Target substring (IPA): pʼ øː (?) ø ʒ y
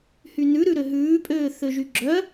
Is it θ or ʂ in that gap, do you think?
θ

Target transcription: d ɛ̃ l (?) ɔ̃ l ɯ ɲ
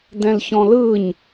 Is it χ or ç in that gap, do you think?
ç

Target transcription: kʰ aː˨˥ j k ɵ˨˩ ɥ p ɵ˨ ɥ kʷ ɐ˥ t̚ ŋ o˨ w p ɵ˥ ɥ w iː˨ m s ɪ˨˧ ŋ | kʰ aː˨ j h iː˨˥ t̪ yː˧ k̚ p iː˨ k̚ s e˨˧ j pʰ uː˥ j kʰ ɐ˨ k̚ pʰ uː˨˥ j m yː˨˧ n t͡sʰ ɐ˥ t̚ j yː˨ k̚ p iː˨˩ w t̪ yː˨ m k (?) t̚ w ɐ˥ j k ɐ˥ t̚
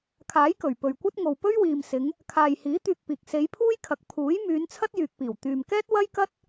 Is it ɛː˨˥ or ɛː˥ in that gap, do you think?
ɛː˥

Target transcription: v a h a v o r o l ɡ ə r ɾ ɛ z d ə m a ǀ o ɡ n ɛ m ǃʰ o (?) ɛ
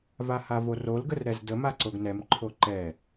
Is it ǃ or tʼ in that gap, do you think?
ǃ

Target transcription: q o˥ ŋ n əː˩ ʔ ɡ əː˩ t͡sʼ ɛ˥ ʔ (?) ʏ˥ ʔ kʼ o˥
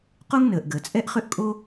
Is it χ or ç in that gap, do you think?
χ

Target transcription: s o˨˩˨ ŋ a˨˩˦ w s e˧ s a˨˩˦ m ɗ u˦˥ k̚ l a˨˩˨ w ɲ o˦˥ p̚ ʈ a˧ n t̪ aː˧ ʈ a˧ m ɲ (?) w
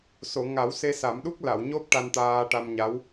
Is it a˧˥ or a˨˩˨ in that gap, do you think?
a˧˥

